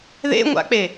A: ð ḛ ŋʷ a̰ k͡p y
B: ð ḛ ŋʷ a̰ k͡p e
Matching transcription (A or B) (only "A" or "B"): B